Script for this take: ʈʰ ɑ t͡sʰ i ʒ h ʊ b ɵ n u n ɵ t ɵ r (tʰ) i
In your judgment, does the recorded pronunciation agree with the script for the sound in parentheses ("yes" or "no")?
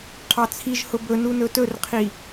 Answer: no